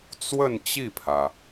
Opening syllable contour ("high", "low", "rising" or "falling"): falling